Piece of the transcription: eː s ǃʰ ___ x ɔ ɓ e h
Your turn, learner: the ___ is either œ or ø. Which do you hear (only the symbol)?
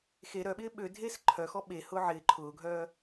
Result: œ